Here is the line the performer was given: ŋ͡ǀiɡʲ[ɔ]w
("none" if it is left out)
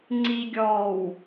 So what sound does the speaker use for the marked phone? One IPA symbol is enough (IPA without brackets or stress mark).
ɔː